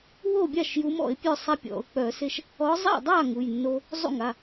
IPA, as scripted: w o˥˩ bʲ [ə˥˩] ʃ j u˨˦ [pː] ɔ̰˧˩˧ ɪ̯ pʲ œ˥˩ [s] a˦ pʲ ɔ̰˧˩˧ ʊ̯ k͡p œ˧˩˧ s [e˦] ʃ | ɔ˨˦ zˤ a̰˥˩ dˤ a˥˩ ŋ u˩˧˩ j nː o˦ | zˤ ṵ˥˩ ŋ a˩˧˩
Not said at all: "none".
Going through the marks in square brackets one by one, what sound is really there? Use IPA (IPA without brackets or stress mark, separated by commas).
a˥˩, m, sˤ, e˦